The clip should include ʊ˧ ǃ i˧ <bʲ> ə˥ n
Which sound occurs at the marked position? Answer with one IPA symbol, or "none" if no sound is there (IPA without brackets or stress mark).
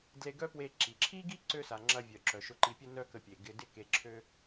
pʲ